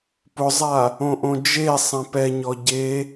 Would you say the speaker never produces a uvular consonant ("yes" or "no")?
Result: yes